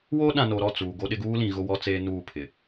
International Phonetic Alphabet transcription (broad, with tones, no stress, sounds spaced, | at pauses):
w o˦ ɗ ã˨ n o˨ ɾ ɔ˦˨ t͡s uː˨ ɡ o˦ ɗ ɪ˦ ɡ uː˦ l ĩ˨ ɣ ʊ˦ w ɔ˦ t͡s eː˦ n uː˦˨ pʰ ɪ˨